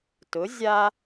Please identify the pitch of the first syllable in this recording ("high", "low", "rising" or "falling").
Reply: rising